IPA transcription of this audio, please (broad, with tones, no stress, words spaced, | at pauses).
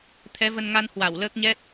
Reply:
t̪ʰɛ˨˦və˧nŋa˧n hwa˧˩wləː˦˥k̚ɲɛ˦˥t̚